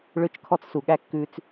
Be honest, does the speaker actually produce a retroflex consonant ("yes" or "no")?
yes